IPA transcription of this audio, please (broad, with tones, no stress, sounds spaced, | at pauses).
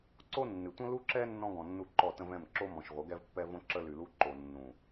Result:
ǀ o˦ nː ɨ˨ tʷ ə̃˦ l u˦ ǁ ɛ˦ nː ɔ̃˦ ɡ ɔ̃˨ nː u˦˨ ǃ ɔ˦˨ t ə̃˦ v ɛ̃˦˨ m ǁ o˦ m ɔ̃˨ ʃ ʁʷ ə˨˦ ɡ ɛ˦ v pː ɛ˦ v õ˦ ǁ ə˦ l y˨ l u˦ ǃ o˨ nː ũ˨